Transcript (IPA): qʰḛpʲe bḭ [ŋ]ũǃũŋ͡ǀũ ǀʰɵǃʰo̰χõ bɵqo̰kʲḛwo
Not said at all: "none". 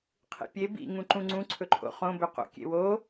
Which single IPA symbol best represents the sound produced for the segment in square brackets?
ŋ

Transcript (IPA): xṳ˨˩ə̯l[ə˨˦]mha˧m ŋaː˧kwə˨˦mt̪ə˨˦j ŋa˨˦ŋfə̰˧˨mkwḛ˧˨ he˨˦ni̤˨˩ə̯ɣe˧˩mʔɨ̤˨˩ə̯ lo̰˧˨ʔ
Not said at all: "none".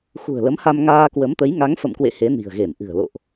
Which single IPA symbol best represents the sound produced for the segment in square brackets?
ə˨˦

